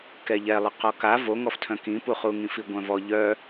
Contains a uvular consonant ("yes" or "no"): yes